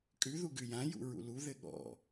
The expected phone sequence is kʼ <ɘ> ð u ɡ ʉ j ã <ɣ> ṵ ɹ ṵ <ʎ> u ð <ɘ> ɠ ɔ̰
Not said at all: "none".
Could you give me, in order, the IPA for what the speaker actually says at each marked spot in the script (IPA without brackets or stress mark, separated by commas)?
ʉ, j, l, ɘ